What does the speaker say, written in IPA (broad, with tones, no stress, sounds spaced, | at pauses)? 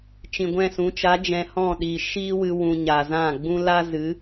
t͡ʃ ĩ˨ ɡʷ ɛ̃˦˨ s ũ˨˦ t͡ʃ a˨˦ d͡ʒ ɛ̃˧ h ɔ̃˦˨ ɗ iː˨ ʃ iː˦ w ɨ˧ w ũ˧ ɲ a˨ z ã˦˨ ɡ͡b ũ˦ l a˦ z ɨ˨˦